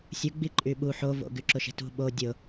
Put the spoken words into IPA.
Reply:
sʲ ʊ ɡ͡b i ǃʼ y ɓ u ħ o v o̰ ɡ y ǁ ʊ ʃ e̤ t ṳ ɓ o dʲ ʊ

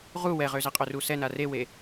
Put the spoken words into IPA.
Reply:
ʁ u w ɛ ʁ ø z e qʼ ø r u s ɛ n a r e w e

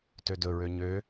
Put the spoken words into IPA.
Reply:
t ø d ɵ ɹ ø ɲ ø

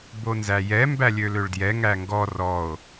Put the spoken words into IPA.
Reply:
b o n z æ j ɛ m b æ lʲ ø l ø ɭ d j ɛ ŋ æ ŋ ɡ ɔ r ɔ o̯

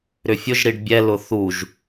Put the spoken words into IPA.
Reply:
ɾ ʏ fʲ ʊ ʒ ɾ i ɖ bʲ ɛ l ʊ θ u ʒ

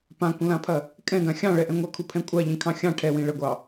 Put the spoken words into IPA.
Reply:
p ã kʷ ə̃ l ã pʰ ɐ | kʼ ɛ̃ ɡ ã xʲ ɑ̃ ɭ ɛ ʔ ɛ̃ ŋʷ ɐ kʰ u pʰ ɛ̃ kʷʼ a ʎ ĩ kʰ ɑ̃ xʲ ɑ̃ ʈʰ ɛ w ĩ ɭ ə ɡʷ ɑ

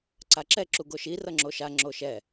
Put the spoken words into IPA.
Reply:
ǀ a ǁ ɛ ǁ u ɡ o ʃ i r ʌ ŋ͡ǁ o ʃ a ŋ͡ǁ o ʃ ɛ

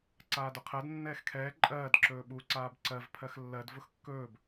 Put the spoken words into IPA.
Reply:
ǀ aː d ʊ qʰ ɜ d nː ɛː x kʰ ɛː ǃʼ ɜː d ǁ ɵː ɓ u ǀ aː b ǀ ɜ v pʰ ɜ x lː ɜ d v ʊ x kː ɵː b

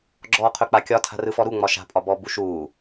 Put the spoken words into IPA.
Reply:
ɡ͡ǁ ɔː qʰ ɵ k͡p a kʲ ɒ tʰ a̤ r ɯ f ɔ ɾ u ŋ͡m ɒ ʃ a̤ pʼ ɒ b ɔː b u ʃ uː

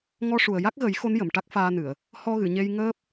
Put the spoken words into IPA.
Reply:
ŋ ɔ˧ ʂ u˨˩ ə̯ j a˦˥ k̚ ɣ ə˨˩˦ j x o˧˥ n j ə˨˩˨ m ʈ a˦˥ k̚ f aː˧ n ɨ˨˩˨ ə̯ | h ɔ˧ ɣ ɨ˨˩˨ ɲ e˧ j ŋ əː˦˥ p̚

